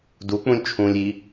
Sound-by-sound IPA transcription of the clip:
duk͡pũlʲ t͡ʃʰũlʲi

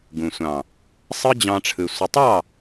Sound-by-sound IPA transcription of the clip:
ɡũ˨sʷɑ̃˨ | sˤɯ˦d͡ʑɑ̃˧ʈ͡ʂʰɯ˨ sʷə˨tˤɑ˦˨

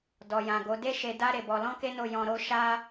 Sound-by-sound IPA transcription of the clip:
dɔ˨jã˨ɡo˨˦ de˦ ʃe˧da˦ ɾe˦˨bɔ˧ lɔ̃˦ke˦no˦˨ jɔ̃˧ɾo˦ ʃa˦

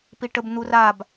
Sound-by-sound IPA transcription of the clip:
piʈəb n̪urab

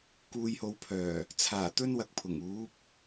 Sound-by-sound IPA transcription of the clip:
kuː˨jho˨wpʰœː˨˩ | t͡sʰaː˨˩t̪ɵ˥nwɐ˨k̚pʰʊ˨˩ŋ uː˨˥p̚

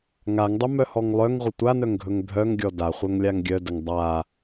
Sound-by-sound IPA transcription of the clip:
ŋaŋdˤɵmœhɔŋ lˠœŋʁʷə tʷanœŋɡʱɵŋ bʱœŋɡʲɔ daχʷœŋlʲaŋ ɡʲœdəŋ dˤa

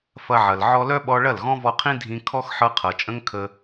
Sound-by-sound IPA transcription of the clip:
fɐ˧ʕɐ˨l ʕɔ˧lœ˦ɓɔ˧ɭɐ˦˨l ɣɔ̃˦vɔ˧qʰĩ˦ dʱĩ˧ kʰɔ˦xħɤ˧qʰɤ˨t͡ʃʼə̃˦ŋ kʰə˦

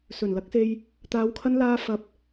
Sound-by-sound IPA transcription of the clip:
sɵ˨˩nlɐ˨˥k̚se˧j | t̪aː˨˧wkʰɐ˧nlaː˧ fɐ˧p̚

